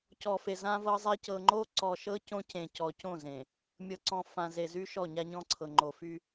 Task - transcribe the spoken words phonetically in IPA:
c ɔ˨ f e˨ z ã˦ v ɤ˦ zˤ e˦ c ɤ˨ ŋ͡ǃ o˦ ǀ ɔ˨ ʃ ɤ˦ c õ˦ c ẽ˨ c ɔ˨ c õ˦˨ z ẽ˨ | mʲ ɤ˨ ǀ ɔ̃˨ f ã˨ z e˨ z y˦ ʃ ɔ˦˨ ɲ a˦ ɲ ɔ̃˦ ǀʰ ɤ˨ ŋ͡ǃ o˨ f y˦

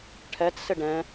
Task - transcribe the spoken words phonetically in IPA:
ʈʰ ɛ t s ɪ ɖ ɛ̃

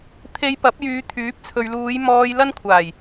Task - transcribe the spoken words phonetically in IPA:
t̪ʰ e˧ j p ɐ˨˥ p̚ j yː˨˧ t̪ʰ yː˨˥ p̚ t͡sʰ ɵ˨ ɥ l uː˨˧ j m ɔː˧ j l ɐ˥ n kʷʰ aː˨˩ j

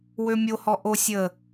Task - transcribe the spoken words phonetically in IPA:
w ø mʲ o h ɔ ʔ o sʲ ə

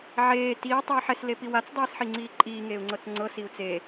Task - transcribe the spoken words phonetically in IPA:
ʕ eː t iː tˤ iː ħ ɛ s l e p i w a t͡s dˤ iː s ħ i ŋ͡ǀ iː ǃʼ iː ŋ eː u̯ ŋ͡ǀ ɤ t͡s ŋ͡ǀ ɤ s i u̯ t͡s e

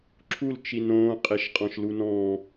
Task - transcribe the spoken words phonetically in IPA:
ǁʰ u l t͡ʃ i n õː qʼ e ʃ qʼ ɔ̃ ʃ l u n ɔ̃ː

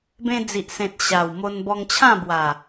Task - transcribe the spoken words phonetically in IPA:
b ẽ˧ d͡z i˨ ʔ s ẽ˨ t̚ ɕ a˨˩ w m o˧ n b ɔ˧ ŋ t͡ɕʰ ã˥˧ b w a˨˩

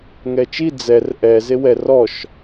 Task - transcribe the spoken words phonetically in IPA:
ŋ ɛ t͡ʃ i d͡z ɛ r ʔ ɛ z e w ɛ r ɔ ʃ

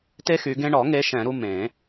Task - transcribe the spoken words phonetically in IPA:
t e˦ x y˨˦ ɡ ẽ˦ ɳ ɔ˨˩˦ ŋ e˨˦ ʃ ɛ̃˨˩˦ ɾ u˦ m ẽ˨˩˦

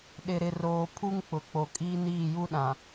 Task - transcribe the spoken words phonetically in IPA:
ɗ ɪ˨ ɾ ɪ˨ r oː˨ pʰ u˦ ŋ k͡p ʊ˨ k͡p o˨ kʼ iː˦ n iː˦˨ j u˦ ɗ ã˨

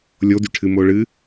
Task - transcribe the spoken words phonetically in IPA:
lʲ o d y ʈʰ ɨ m o ɭ ɨ

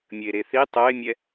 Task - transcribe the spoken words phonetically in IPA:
mʲ ɘ e̯ ɾ e θ i tˤ o e̯ mʲ ɛ

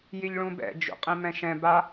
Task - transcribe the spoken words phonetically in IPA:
j i ʎ ɭ ũ b ɛ̰ d͡ʒ ṵ qʼ ĩ m ɛ̃ ʃ ɛ̃ b a

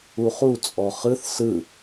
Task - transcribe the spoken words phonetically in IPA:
u χ u t͡sʼ ɔ χ ɯ θ s ɯ

